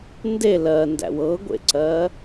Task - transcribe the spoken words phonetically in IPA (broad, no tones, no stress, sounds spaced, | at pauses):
n d e l ɜ n d æ̰ w ɤ ɡʷ ḛ ǀ ɜː